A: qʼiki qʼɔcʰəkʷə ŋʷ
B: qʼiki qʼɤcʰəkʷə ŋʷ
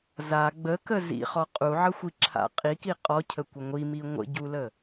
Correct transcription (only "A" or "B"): A